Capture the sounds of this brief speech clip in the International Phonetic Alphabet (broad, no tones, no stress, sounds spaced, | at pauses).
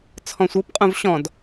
t͡sʰ ɔ̃ sʷ ɤ p qʼ ũ v ɕ ɔ̃ d